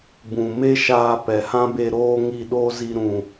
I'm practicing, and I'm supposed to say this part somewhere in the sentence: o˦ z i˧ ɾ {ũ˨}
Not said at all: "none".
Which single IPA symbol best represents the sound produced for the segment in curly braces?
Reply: ũ˨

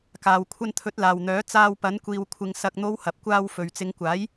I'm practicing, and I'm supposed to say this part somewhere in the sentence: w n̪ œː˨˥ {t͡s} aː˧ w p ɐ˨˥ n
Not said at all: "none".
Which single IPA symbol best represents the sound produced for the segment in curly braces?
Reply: t͡s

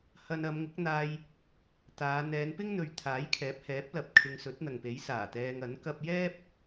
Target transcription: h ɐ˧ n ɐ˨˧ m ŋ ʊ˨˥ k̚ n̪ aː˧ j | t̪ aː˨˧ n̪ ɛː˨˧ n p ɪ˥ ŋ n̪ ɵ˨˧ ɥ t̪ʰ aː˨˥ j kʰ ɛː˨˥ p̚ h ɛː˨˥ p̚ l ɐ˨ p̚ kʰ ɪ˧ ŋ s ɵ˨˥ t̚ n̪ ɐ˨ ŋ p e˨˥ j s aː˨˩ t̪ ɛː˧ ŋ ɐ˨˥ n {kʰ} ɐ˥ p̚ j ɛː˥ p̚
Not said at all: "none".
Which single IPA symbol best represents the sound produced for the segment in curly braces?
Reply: k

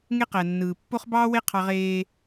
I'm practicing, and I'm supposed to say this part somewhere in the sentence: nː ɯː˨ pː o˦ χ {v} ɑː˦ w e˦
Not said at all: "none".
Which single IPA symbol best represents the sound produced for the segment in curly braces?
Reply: b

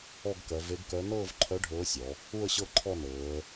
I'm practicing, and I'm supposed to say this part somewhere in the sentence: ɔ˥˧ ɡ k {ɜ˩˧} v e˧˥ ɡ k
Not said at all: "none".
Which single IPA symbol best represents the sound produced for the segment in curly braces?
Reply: ɜ˩˧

